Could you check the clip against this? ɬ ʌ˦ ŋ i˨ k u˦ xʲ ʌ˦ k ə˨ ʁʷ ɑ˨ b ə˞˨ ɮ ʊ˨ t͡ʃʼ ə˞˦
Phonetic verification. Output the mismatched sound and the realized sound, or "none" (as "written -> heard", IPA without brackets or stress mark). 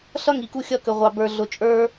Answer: none